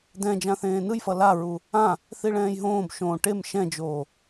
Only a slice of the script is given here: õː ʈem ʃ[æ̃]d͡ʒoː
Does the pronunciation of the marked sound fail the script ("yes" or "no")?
yes